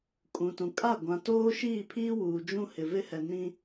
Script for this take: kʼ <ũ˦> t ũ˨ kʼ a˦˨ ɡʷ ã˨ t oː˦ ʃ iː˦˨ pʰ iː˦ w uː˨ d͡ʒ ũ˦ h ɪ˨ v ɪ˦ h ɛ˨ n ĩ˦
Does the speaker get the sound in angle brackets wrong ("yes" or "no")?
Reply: yes